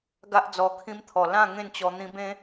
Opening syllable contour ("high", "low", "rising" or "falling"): high